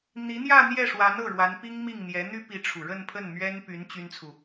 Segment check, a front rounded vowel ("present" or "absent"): present